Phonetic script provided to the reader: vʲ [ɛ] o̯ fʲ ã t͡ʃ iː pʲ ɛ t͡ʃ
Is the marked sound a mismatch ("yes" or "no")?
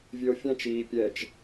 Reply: yes